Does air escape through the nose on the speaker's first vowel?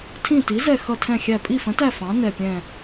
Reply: yes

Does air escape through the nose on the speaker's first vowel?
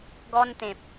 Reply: no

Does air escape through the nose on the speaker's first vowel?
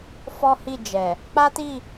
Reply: no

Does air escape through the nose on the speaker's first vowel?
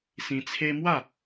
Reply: yes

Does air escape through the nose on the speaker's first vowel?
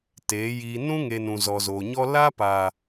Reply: no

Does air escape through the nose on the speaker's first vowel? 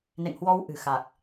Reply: no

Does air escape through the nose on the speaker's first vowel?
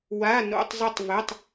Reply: no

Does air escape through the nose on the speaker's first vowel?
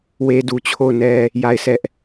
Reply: no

